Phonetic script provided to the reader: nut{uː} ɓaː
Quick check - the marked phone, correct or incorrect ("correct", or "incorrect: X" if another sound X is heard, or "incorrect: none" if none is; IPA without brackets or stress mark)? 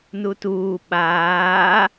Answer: correct